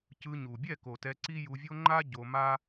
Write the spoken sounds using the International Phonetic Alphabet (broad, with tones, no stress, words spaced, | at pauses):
cɯ˧ɲu˨ bʲɛ˦˨ko˨ tɛ˧ǀi˦ju˧vʲo˦ ŋ͡ǃa˦ ɟo˧ ma˦